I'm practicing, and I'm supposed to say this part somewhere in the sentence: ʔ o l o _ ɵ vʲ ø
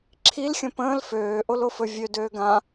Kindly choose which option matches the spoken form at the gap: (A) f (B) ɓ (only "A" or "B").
A